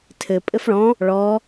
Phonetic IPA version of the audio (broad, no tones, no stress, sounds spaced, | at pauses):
tʰ ɘ pʼ ɘ f ɭ ɔ̃ | ɭ ɔ